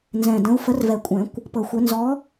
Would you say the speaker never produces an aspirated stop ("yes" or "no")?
yes